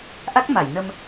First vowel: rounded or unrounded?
unrounded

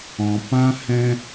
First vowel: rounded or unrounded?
rounded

